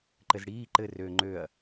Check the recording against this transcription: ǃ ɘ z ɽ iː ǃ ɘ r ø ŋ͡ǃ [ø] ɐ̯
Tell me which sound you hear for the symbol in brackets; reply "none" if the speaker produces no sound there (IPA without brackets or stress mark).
ø